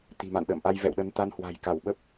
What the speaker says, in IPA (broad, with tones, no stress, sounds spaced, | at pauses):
t̪ i̤˨˩ m a̰˧˨ n ɗ ə̰ː˧˨ m ʔ a˧ j v ɛ̰˧˨ w ɗ ə˧ n t̪ a˧ n h w a̤˨˩ j k a˧˩ w ɓ ə˦˥ p̚